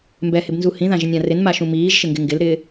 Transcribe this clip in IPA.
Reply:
mbɛhɪbnzu hĩðãʒɪnʲã rɪnmaʃũ miːʒʃɪŋɡɪ ŋɡɪlɾɪː

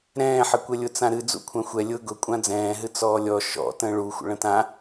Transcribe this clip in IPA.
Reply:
ɾɛ̃ːħəkʷɛlʲʊ t͡sãɾɨ d͡zṵkʷʰãxʷɛ lʲʊ ɡʊ kʷʼãd͡zɛ̃ːɦɨ t͡sɔːlʲɔ ʃɔ̰ tə̃ːɭuxʷə̰ ɭə̃tã

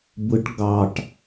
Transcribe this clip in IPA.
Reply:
bɯʈ ɡɑʈ

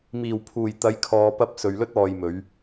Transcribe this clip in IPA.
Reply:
miː˨˩wpʰuː˨˩j t̪ɐ˨˧jkʰɔː˨pɐ˧p̚ sɵ˨ɥlɵ˥t̚ɔː˨jmɵ˨˧ɥ

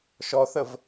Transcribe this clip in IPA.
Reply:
ʃɔθəv

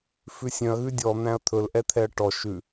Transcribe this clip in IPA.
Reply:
fʉsʲœ̃ɐ̯ ɣʉdʲɔ n̪æ̃ɐ̯t̪ʰɵl ʔɛt̪ʰɛɐ̯ʈɔ ʃʉ

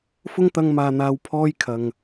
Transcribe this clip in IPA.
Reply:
fʊ˥ŋt̪ɐ˧ŋmaː˨n̪aː˨˧w pʰɔː˥jkʰɐ˨ŋ

